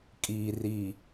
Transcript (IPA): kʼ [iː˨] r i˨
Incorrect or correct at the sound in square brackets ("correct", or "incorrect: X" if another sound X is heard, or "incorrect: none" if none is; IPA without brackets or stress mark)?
correct